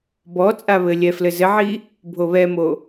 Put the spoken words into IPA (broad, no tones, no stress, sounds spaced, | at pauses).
b ɔ t͡sʼ a β ɘ lʲ ɛ f l ɘ z ɘ ʕ i | bʱ o β ɛ m o